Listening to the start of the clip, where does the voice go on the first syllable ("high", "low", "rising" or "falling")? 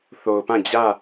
low